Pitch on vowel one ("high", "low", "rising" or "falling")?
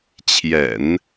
low